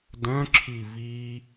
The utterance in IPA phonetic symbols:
d œ̃ ǁʰ i v i

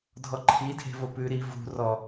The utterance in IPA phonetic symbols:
dʱ ɔ ǃʰ i dʱ e̤ v o p ʉ ɾ i v ṳ r ɔ

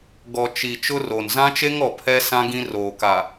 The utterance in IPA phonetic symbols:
ɡ ɔ˨ t͡ʃ i˨ t͡ʃ ʊ˦ r o˨ n z ã˦ t͡ʃ e˦ ŋ ɔ˨ pʰ ɛ˦ s ã˦ ɡ ĩ˦ r oː˨ k a˨

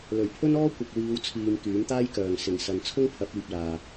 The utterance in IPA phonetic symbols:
l ɵ˨˩ ɥ pʰ ɵ˥ n ɔː˥ kʷ ɐ˨ k̚ w iː˨˧ w t͡sʰ iː˨ m k yː˨˥ m t̪ aː˥ j k œː˨ ŋ s ɪ˨˩ ŋ s ɐ˨ n t͡sʰ ʊ˥ ŋ pʰ ɐ˨˥ p̚ iː˨ p̚ l aː˨

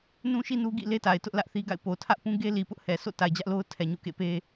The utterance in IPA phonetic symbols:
n ũ˦ ʃ i˦ n u˦ ɡ ḭ˦˨ l e˦ t a˨ ɪ̯ t ʊ˦ ʔ l ä˦ ʔ θ i˦ ɡ a̰˦˨ ɪ̯ p o˨ tʰ ä˦ ʔ p ũ˦ ɡ e˦ l i˨ p ʊ˦ ʔ h ɛ˨ s o̰˦˨ t a˨ ɪ̯ d͡ʑ ä˦ ʔ l o˦ ʊ̯ tʰ ɛ˨ ɲ ṵ˦˨ k ḛ˦˨ p e˦

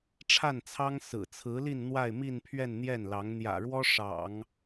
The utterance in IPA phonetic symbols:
ʈ͡ʂʰ a˥˩ n t͡sʰ ɑ˥ ŋ s ɹ̩˨˩ t͡sʰ ɹ̩˧˥ l i˥˧ n n̪ w a˥˧ ɪ̯ m i˥˧ n pʰ ɥ ɛ˥˧ n n̪ j ɛ˥˩ n l ɑ˧˥ ŋ n̪ j ä̰˨˩ ɻ w ɔ˥ ʂ ɑ̰˨˩˦ ŋ

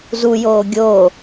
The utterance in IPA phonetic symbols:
z u j oː ɡʲ o

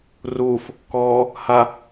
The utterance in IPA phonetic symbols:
r uː f | k ɔː | h a

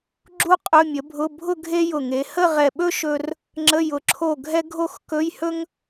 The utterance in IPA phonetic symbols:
ɡ͡ǁ u˥ qʼ ɵ˧˥˧ mʲ ə˩˥ bʱ ʊ˧˥˧ bʱ ʊ˥˧ ɡʱ e˥ j ʊ˧˩ ŋ e˩˥ h ə˥˧ ʁ ɛ˧˩ ɓ ɵ˥ ʃ ɵ˥ r | ŋ͡ǁ ə˧˥˧ j ʊ˧˩ ǁʰ o˥˩ ɡʱ ɛ˥ ɡʱ o˥˧ x k ɵ˧˥˧ j h ɵ˥ ŋ

